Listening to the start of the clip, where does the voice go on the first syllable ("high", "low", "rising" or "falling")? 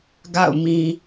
falling